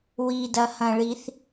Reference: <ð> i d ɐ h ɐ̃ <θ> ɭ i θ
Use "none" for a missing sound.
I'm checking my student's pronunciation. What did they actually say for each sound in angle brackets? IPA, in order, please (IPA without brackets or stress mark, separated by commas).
w, none